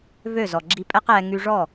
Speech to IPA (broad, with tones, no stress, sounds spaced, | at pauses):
v ø˦˨ z ɔ˨ ɡ͡ǁ i˧ pʼ ɛ˦ q ɛː˧ ŋ y˧ ʐ ɔ˦˨